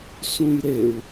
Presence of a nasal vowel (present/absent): present